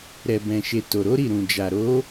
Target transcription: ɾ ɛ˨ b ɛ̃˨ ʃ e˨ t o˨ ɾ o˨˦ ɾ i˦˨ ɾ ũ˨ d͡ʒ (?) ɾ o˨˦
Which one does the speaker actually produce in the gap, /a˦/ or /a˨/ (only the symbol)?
a˨